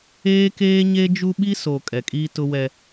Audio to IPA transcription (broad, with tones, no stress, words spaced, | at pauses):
eː˦keː˦ɲe˦ d͡ʒu˦ɓi˦so˨ kʼɛ˨kʼiː˦tʊ˦wɛ˦